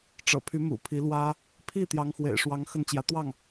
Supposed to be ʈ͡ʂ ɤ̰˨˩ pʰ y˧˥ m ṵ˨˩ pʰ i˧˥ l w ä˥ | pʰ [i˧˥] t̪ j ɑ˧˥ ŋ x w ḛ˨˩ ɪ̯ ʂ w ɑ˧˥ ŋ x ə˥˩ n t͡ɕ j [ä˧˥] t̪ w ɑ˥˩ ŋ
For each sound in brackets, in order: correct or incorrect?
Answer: incorrect: i˥˩, correct

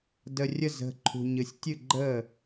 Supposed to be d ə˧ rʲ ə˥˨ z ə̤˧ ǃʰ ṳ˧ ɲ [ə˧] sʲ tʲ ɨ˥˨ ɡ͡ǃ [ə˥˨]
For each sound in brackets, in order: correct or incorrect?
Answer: incorrect: ɨ˧, correct

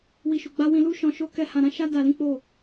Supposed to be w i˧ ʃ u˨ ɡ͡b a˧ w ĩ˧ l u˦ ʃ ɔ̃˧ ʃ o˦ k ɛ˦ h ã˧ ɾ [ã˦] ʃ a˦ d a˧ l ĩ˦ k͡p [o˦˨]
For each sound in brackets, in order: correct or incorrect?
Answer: correct, correct

